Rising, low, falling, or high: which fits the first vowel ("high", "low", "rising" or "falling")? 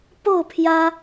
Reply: falling